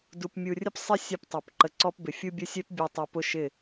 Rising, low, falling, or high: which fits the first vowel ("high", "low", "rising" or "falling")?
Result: low